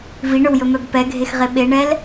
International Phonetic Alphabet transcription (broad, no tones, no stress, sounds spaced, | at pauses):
v i ɳ ɵ w j ɵ m œ b p ɛ ɡʱ e x ʁ e ɓ e ɳ ɛ l